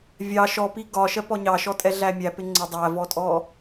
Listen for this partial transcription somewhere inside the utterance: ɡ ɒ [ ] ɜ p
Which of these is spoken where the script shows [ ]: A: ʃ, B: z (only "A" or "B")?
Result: A